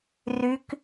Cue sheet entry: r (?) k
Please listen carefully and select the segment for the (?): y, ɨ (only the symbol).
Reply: y